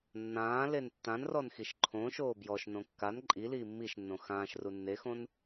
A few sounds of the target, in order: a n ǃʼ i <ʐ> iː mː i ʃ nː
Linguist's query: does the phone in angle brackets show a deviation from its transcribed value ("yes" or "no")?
yes